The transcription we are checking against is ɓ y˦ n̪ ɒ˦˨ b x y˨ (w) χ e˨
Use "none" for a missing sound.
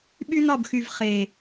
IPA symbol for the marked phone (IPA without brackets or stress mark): v